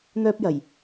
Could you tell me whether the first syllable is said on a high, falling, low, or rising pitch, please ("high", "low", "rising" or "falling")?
high